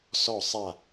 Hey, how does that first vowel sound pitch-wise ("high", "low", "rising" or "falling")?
falling